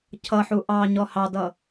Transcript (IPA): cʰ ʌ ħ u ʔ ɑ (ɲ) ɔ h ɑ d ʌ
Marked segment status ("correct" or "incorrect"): correct